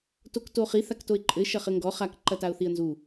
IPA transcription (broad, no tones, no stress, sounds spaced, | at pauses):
t o k t o χ i θ a k t o ɪ̯ ǃʼ ɘ ʃ ɐ χ ɘ ŋ ɡ ɔ χ a k ǃ ɐ t a ʊ̯ θ i ə̯ n z u